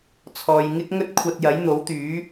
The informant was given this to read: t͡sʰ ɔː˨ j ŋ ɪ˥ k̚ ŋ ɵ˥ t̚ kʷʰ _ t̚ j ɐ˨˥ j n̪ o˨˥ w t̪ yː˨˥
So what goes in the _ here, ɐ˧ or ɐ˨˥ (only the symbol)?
ɐ˧